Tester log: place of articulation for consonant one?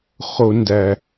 uvular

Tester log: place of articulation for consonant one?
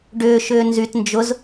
retroflex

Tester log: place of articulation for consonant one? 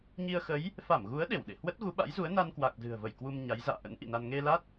palatal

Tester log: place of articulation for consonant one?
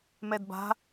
labial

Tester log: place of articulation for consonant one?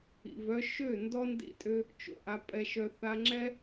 labial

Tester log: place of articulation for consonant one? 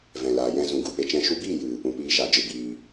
labial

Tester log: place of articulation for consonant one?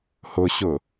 glottal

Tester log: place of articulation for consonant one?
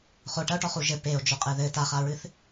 uvular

